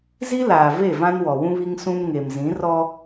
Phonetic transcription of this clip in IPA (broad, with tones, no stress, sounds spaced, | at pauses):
z i˦ l aː˨ v e˦˨ v ã˦ n w ɔ˨ w ũ˦ β i˦ ŋ s ũ˦ m ŋ e˨ m z ĩ˨˦ r ɔ˦